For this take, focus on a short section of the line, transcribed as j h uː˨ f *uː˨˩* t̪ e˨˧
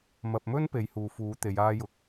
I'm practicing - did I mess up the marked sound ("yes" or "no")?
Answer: yes